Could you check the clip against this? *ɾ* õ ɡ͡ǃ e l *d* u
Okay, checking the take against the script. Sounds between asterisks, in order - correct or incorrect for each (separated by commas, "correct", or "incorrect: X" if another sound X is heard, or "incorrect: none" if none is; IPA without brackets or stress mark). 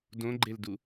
incorrect: d, correct